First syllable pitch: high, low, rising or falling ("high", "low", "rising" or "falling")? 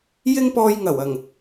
high